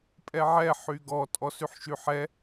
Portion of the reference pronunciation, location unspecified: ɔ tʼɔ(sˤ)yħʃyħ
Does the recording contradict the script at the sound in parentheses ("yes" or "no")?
yes